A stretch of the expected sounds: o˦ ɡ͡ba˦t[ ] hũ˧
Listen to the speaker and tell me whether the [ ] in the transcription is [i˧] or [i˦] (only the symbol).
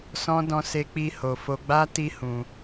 i˦